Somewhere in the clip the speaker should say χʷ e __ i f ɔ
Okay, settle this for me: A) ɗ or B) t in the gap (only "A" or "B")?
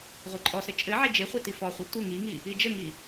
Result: B